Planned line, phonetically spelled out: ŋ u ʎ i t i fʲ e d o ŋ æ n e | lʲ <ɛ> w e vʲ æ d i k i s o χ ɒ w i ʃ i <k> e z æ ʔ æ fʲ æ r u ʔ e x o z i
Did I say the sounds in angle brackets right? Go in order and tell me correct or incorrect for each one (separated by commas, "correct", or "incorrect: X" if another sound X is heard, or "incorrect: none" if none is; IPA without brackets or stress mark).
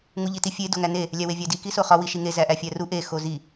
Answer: incorrect: æ, incorrect: ŋ